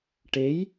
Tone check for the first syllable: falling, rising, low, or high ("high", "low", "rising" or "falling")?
rising